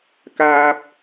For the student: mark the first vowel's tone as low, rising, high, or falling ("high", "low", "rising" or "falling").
high